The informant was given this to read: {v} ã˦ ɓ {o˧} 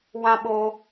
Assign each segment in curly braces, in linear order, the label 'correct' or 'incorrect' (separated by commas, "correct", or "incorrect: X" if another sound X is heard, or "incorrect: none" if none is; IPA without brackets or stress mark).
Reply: incorrect: w, correct